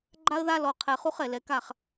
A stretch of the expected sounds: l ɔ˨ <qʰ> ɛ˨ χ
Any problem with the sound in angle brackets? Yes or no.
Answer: no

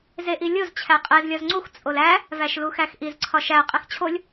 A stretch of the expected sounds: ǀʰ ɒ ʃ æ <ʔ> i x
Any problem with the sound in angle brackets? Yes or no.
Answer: yes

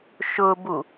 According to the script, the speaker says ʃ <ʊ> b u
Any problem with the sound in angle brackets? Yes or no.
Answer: no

